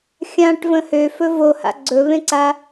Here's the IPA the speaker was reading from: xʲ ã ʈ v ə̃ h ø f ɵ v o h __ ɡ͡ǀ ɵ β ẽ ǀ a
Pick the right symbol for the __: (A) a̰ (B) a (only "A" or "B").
A